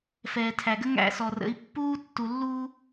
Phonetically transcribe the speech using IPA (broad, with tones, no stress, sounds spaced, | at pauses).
f ɛː˨ tʰ æ˨ ɡ ə˦ ŋ æ̰˦˨ s ɔ˨ r ə̰˨˦ i̯ pː uː˦ tː u˨ lː uː˦